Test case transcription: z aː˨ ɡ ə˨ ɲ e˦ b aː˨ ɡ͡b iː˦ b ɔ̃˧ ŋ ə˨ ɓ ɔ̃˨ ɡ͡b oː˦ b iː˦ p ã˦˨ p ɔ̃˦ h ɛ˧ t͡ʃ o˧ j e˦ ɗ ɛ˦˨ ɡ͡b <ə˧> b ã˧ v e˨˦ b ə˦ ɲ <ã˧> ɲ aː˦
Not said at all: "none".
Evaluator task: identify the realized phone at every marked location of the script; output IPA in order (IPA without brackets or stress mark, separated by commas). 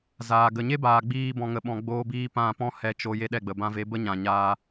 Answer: ə˨, ã˨